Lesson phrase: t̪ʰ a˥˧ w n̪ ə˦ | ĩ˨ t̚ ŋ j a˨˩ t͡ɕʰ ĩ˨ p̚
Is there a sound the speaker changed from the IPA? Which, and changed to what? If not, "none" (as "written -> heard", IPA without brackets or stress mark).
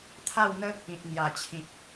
none